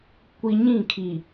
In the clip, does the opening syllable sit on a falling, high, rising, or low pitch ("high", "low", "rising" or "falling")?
low